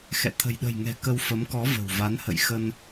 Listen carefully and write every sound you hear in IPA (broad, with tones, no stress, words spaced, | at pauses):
xɛ̰˧˨ t̪ʰə̤˨˩jɗə̤˨˩jŋɛ̤˨˩ kə˧wfə˨˦mkɔ˨˦ və̤˨˩wva˨˦n hə̰˧˨jxə˧n